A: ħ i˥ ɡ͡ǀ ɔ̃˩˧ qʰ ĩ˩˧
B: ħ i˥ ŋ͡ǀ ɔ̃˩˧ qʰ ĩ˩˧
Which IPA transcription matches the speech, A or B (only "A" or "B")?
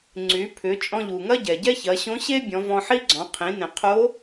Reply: A